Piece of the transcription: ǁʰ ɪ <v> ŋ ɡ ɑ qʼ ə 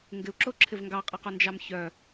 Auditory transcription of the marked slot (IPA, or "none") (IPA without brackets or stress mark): v